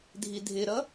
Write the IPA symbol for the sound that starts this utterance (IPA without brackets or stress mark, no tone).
dʱ